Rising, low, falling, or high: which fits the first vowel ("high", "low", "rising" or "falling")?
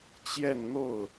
falling